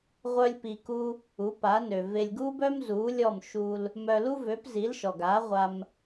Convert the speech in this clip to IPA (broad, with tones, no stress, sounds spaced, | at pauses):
ʁʷ œ˥ lʲ p i˧ k u˥ | u˩˥ p a˩˥ n ø˩ v e˧ lʲ ɡ u˥ b œ˥ m z u˩˥ lʲ ɔ˥˩ m ʃ u˧ l | m œ˧ l u˥ v ø˩˥ p z i˩˥ l ʃ ɔ˩ ɡ a˩˥ ʁʷ a˧ m